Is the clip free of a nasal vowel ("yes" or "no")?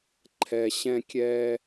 no